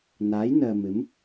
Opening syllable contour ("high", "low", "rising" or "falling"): rising